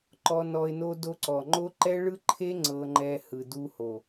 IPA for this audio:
ǃ ɔ˦ n ɔ˦ ɪ̯ n o˦ d o˧ ǀ ɔ˨ ŋ͡ǃ o˦ ǃ ɛ˦ ɭ ɯ˦ ǃʰ e˦ ŋ͡ǀ ɤ˧ ŋ͡ǃ ɛ˧ h ɯ˨ d u˧ h o˨

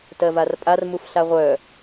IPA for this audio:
t ɜ v a r pʼ a r m u f ɬ a ʁʷ œ

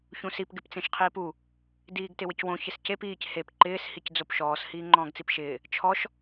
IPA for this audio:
ç ũ s i p ɡ ɪ p t͡s ẽ ʃ qʰ iː p u | d iː ɡ t ɪ w ɪ c w õ ç ɪ s c e p iː c h e p ǃ ɪː s h i c d͡z o p ʃ ɔː s h iː ŋ͡ǃ ɔ̃ː ɡ t͡s i p ʃ ɪː | t͡ʃʰ ɔ ʃ

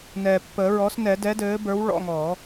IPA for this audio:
n ɛː˨˩ pː əː˨˩˦ ɹ ɔ˩˥ s n ɛ˨˩˦ d ɛ˩˥ d ɘː˩˥ b ə˞˩˥ w ɭ ɔ̰˧ ŋ ɔː˨˩˦

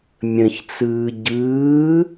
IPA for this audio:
mʲ ə̃ ç t͡s ɯː ɟ ɯː

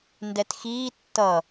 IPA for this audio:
n d ɛ t x iː tː ʌ

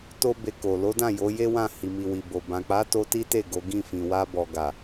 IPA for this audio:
t o˦ b e˧ k o˨ l o˨˦ d ã˦˨ j o˨˦ j e˦ w ã˦˨ h i˨ m i˨ w i˨ b o˨ b ã˨ k͡p a˨˦ t o˧ t i˦ t e˦˨ ɡ o˨˦ ɡ ĩ˦˨ f ĩ˨ w a˧ b ɔ˨ ɡ a˨

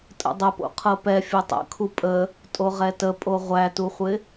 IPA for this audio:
tʼ ə̰ dˤ ə p o̰ qʰ ɤ p ɛ fʲ o tˤ ə̰ kʰ u pʼ ə | tʼ o ʁ ɛ t ə pʼ o ʁʷ æ t u χʷ ɪ

